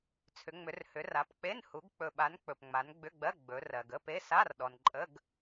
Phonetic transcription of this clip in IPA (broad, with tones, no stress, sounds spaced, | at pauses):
t͡sʰ ʏ˨˦ ŋ͡m ʏ˨˦ r h ʏ˨˦ r a˨˦ p k͡p e˧˥˧ n h u˨˦ ɡ k͡p ɵ˨ ɓ a˨˦ n k͡p ɵ˨ p ŋ͡m a˨˦ n ɡ͡b ʏ˧˥˧ ɡ͡b ɜ˧˥˧ ɡ͡b ɵ˨˦ r ɜ˨ ɡ ə˧˥˧ p e˧˥˧ s a˧˥˧ r ɗ ɔ˨ n ǃʼ ə˧˥˧ ɡ